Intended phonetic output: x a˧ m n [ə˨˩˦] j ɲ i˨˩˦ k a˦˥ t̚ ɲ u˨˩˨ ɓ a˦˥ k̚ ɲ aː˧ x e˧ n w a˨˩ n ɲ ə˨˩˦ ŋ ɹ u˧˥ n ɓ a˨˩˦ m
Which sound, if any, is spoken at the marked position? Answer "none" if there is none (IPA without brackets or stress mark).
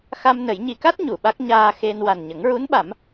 ə˨˩˦